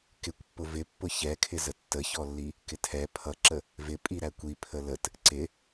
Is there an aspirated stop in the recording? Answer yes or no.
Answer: yes